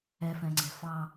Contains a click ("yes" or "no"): yes